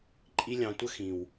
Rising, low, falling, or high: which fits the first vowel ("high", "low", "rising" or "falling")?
high